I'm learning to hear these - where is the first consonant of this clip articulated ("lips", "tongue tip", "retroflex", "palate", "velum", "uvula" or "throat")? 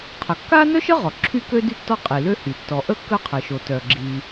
uvula